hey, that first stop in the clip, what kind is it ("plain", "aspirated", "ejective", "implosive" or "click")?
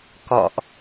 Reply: plain